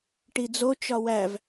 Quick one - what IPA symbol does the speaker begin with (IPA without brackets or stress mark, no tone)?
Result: ʈ